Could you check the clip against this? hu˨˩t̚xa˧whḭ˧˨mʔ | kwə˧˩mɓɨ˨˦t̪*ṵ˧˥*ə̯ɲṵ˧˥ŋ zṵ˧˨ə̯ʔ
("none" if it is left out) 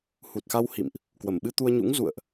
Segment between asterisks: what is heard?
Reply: u˧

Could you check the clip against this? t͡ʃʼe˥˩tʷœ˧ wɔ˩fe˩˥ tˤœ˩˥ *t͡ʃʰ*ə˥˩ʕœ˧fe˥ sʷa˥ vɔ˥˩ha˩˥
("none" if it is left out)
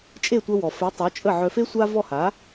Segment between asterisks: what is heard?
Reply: t͡ʃʼ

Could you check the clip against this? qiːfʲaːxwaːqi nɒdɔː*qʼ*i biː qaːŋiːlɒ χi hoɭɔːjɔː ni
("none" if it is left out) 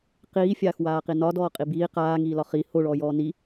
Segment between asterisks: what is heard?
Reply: qʼ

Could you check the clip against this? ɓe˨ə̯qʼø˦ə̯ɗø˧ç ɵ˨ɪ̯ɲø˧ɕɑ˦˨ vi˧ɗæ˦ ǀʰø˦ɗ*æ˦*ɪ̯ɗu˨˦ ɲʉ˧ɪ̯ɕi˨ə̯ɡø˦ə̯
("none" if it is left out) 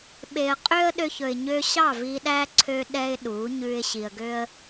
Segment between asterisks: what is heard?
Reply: ɛ˦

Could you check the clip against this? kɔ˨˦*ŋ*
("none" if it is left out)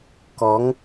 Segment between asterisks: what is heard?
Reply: ŋ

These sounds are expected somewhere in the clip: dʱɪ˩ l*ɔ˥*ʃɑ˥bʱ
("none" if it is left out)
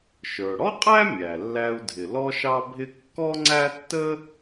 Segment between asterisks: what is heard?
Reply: ɔ˥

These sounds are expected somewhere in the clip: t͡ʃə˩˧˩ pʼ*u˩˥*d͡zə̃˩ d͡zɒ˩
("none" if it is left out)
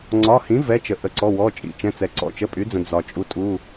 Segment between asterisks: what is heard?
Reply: y˩˥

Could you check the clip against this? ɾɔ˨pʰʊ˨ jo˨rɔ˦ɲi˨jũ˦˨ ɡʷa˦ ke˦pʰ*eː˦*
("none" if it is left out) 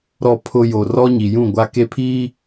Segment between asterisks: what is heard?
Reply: iː˦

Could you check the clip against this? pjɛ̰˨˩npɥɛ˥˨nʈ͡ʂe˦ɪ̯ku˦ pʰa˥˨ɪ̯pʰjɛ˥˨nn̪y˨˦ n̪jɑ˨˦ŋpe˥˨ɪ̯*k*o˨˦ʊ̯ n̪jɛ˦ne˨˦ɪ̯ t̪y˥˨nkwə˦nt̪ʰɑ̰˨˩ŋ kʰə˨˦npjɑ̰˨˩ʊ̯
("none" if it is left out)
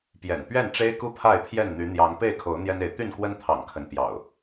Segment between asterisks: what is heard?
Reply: kʰ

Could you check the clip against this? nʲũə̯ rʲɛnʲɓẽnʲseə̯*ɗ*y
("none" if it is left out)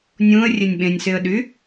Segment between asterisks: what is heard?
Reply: ɗ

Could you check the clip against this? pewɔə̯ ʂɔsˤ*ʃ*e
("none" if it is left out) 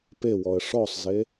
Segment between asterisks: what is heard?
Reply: z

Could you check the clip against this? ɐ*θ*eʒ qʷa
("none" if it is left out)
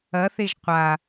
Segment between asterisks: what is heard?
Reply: θ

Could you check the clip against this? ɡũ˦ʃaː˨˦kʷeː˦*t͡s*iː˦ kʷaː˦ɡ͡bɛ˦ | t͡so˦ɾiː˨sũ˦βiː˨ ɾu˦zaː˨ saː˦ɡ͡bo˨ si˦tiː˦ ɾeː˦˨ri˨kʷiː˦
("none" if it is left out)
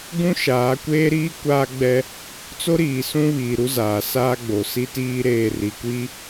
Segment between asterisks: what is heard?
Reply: ɾ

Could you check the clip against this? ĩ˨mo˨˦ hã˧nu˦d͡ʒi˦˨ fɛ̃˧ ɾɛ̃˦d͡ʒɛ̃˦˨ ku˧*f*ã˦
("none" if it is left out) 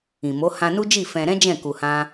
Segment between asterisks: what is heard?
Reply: h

